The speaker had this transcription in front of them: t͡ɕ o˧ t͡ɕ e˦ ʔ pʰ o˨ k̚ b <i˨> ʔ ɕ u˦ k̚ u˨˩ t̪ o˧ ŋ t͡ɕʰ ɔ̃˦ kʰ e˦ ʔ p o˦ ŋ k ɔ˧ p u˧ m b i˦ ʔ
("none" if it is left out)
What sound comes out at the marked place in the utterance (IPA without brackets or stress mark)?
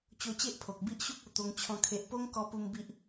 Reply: i˦